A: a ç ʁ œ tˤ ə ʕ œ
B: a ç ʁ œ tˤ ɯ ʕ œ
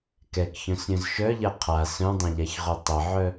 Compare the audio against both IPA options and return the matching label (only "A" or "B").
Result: A